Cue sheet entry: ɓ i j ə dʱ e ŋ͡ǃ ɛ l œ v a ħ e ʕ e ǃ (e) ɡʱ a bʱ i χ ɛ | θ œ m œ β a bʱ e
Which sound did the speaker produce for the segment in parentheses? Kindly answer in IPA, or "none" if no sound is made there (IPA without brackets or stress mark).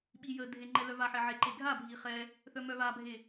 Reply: e